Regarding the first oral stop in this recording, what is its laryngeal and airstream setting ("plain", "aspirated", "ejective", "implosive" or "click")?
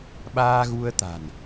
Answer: implosive